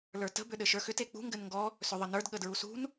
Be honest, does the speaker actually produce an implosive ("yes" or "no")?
yes